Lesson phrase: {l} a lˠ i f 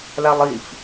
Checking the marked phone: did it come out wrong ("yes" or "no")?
no